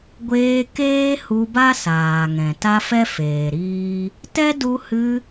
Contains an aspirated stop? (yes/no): no